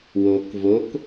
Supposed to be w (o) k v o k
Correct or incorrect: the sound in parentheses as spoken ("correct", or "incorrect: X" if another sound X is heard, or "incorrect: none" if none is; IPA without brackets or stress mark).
correct